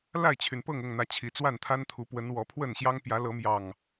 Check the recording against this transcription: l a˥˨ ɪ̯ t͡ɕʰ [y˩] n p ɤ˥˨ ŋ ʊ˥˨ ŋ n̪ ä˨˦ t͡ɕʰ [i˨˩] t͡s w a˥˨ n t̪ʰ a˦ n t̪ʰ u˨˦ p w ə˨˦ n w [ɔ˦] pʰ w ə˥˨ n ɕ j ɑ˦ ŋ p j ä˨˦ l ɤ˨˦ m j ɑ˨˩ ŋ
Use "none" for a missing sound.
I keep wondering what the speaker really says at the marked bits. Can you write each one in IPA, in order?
y˩, i˨˩, ɔ˨˦

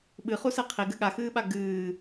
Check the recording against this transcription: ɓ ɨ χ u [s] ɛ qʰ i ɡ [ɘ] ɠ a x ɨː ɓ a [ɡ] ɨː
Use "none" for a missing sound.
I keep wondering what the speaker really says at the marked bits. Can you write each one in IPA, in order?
s, ɘ, ɡ

